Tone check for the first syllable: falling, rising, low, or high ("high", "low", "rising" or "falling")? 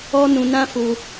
high